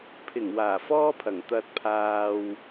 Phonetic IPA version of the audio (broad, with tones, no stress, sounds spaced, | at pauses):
pʰ ɪ˨˩ ŋ w aː˨˩ f ɔː˥ pʰ ɐ˨˩ ŋ t̪ ɐ˧ t̚ pʰ aː˧ w